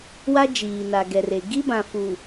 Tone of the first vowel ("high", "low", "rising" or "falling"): high